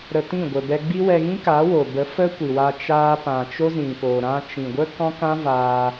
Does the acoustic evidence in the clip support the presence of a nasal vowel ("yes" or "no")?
yes